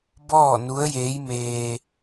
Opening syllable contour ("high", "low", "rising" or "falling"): falling